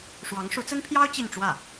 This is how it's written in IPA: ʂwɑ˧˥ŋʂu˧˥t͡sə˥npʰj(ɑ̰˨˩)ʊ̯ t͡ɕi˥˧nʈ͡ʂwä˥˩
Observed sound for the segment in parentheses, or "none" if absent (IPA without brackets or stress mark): ɑ˥